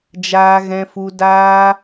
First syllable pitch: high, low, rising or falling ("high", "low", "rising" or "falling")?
high